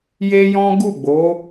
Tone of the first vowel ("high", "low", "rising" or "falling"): high